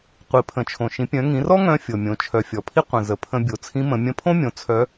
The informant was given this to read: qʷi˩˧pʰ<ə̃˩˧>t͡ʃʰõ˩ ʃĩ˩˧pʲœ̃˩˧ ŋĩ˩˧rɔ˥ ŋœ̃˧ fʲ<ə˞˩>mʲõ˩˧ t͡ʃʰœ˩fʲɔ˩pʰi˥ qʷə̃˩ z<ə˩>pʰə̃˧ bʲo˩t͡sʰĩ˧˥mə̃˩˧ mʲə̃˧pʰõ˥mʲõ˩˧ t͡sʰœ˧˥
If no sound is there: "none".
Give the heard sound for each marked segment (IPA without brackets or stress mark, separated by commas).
ə̃˩˧, ɤ˩, ə˩